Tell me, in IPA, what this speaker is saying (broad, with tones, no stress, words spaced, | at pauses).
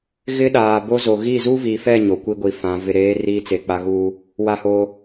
ɣɪ˦ɗaː˨ bo˦zo˨ ɣi˦˨zu˦vi˨fɛ˦˨ ɲo˨kʷi˦ɡʷi˨ fã˨˦ vɪ˨ɾeː˨˦ riː˦t͡se˨ k͡pa˦ ɣuː˦ | wa˦hoː˦